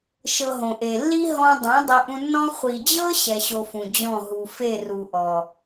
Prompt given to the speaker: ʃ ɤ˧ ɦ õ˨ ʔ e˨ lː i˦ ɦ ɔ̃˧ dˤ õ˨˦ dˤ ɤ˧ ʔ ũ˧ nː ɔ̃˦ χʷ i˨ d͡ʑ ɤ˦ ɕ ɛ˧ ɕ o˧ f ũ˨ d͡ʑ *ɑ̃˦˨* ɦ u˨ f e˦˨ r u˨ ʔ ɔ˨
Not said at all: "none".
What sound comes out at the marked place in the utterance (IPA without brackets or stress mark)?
ɔ̃˦˨